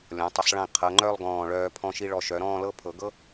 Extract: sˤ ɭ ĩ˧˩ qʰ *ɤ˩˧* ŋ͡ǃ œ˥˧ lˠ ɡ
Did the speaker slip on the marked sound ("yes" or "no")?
no